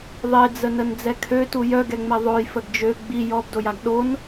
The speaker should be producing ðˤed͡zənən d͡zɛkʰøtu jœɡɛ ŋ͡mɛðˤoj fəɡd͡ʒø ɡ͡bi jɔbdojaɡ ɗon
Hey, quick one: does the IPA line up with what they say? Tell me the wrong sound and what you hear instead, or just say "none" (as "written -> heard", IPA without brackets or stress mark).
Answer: none